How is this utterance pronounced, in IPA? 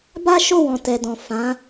ba˦ʃo˦˨wɔ̃˨ tɛ˨dɔ̃˨ fã˨˦

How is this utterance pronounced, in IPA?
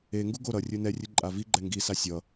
eŋɡu ɡo ɾʌ rʲɯnɛrʲɯ ǃʼaviɡ͡ǃɛ ŋɡisa sʲʌ

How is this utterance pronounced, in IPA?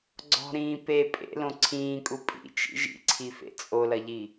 ɡ͡ǀɔ̤ɾĩː pe pʼḛlõ ǀʰĩːkʼu pʼḭt͡ʃḭ ʒḭǀʰifḛ t͡sʼolɐʎi

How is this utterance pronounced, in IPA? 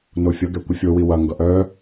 nofʲʌ ɡɛkʷəfʲo wiwɐ ŋɡʌʔœ

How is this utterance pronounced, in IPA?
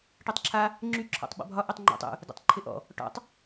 ʈɯtˤǁʰa | ŋ͡ǁy ǁʰɔ̰tˤɓɔ̰bʱɒ ʔytˤŋ͡ǃo̰tˤ ṵ | dɛ̰tˤǃʰɪʔɔ̰ | ʈɔ̰tˤ

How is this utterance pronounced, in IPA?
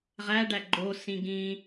ʁæɖæ ɡ͡ǃosĩ ɡĩ

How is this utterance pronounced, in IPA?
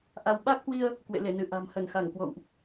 ʔa˧w ɓa˦˥k̚hwi˧ə̯ | kwḛ˧˨le˧˩nɨ˧˩ ʔa̤˨˩m hə˧˩nxa˧˩ŋkwo̰˧˨wʔ

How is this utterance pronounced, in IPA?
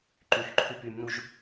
ǃyxǃʰyp ymnuʒ

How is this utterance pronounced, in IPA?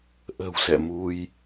ʔə̤˨˩wsɛ̰˧˨mu˧j

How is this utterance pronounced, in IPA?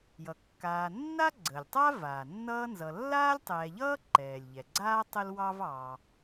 jʌ˩kːaː˨ nːa˥ɡ͡ǀəː˩lʲtˤa˥ vaː˩nːʌː˦nzʌ˨ lːaː˥lʲtˤɛː˨ʎʌː˥ ǃɛː˩lʲʎɛ˩ɡ͡ǀaː˥ tˤə˥lwɑ˥v ɑ˨

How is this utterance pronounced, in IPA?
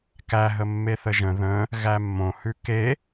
kæɦə mːeθəʒə̃ ðə̃ | ɣæmːõhʉ ke

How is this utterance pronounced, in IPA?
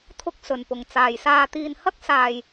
t̪ʰʊ˥k̚sɵ˨npʊ˨ŋ t͡saː˨jsaː˧t̪iː˧nhɐ˥k̚ saː˨j

